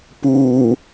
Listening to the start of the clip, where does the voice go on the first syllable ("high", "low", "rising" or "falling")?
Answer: low